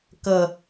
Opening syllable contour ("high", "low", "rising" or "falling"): low